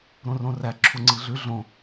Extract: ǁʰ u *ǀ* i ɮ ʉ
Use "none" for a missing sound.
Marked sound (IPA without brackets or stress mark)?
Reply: ŋ͡ǀ